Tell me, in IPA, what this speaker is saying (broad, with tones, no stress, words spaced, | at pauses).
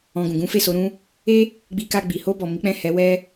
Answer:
ɔ̃˧ɡũ˨ ɡũ˨˦fe˦˨ so˨˦ɾũ˦ | e˦ | ɡ͡bi˧ka˧ ɡ͡bi˨ho˧bɔ˨ mi˨˦k͡pɛ̃˦˨hɛ˨˦ wɛ˦